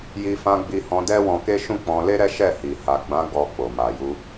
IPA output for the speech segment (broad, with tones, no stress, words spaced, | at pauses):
ji˧fã˧ɡ͡bi˧hɔ̃˧ dɛ˦wɔ̃˧ke˦ ʃũ˦k͡pɔ̃˧ le˦ɾɛ˦ ʃɛ˦˨hi˨ ha˨ɡ͡bã˨˦ ɡɔ˧k͡po˨ ma˨ju˧